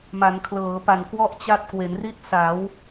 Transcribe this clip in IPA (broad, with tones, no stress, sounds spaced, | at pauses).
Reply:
m a˩˦ n kʰ l ɤː˩˦ p a˨˩ n k w ɔ˥˩ ʔ t͡ɕ a˦˥ t̚ k w e˩˦ n r i˥˩ t̚ s a˩˦ w